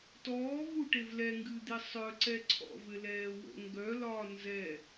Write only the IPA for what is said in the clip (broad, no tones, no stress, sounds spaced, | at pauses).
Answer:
t ɔː v u ʈ e v l ɛ ŋ ɡ ɨ d̪ i sˤ œ ǀ ɛ ǀʰ ɔ̰ v ɘ l ɛː w ə̰ ŋ ɡ œ l ɒː n z ɛ